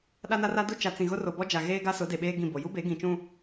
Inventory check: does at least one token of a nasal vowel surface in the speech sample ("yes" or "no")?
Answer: yes